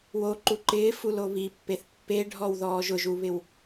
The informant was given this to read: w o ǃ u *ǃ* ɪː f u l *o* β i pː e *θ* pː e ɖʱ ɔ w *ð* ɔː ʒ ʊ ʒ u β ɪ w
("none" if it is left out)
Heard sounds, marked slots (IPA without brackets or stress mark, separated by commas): ǃ, o, θ, ð